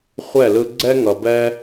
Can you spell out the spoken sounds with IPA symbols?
χʷɛ˥˨lɯ˦ ɡ͡ǀɛ˦ŋʌ˨bɛ˦

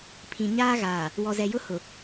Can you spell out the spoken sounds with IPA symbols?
pʰĩ˨ ɲaː˦ɣaː˨ | wɔ˨zɛ˨jʊ˦ hʊ˨

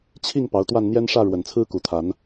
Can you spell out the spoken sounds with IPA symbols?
t͡ɕʰi˥˨ŋ pɑ˨˦ʊ̯t̪wa˥˨n n̪jɛ˦nʂä˥˨ ɻwə˨˩nt͡sʰɹ̩˦ku˨˩t̪ʰa˨˦n

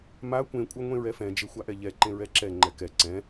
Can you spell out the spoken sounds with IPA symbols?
ma kʷẽkʷʼɜŋʷẽ ɹɛfɛ̃ d͡ʒexʷaʔɛʎɛ ǃẽɹɛǁɛ ŋ͡ǃɛkɛ ǀɛ̃

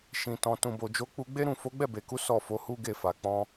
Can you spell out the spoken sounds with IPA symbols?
ʃĩ˨tɔ̃˨ tũ˨bo˨d͡ʒo˨˦ k͡pu˦ ɡ͡be˦ɾũ˦˨ fo˨˦ɡ͡bɛ˦˨be˨ku˨˦ sɔ˦˨ fo˨˦hu˦ɡe˦˨ fa˨k͡pɔ̃˧

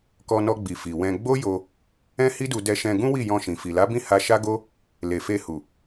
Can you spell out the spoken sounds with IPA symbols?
kɔ˧nɔ˧ɡ͡bi˨ fi˨wɛ̃˧ ɡ͡bo˦jo˧ | ɛ̃˦hi˦du˧ dɛ˧ʃɛ̃˧ɡũ˦wi˦˨ jɔ̃˧ʃĩ˨ fi˨la˨˦bĩ˦˨ ha˧ʃa˦ɡo˦ | le˨fe˧hu˨

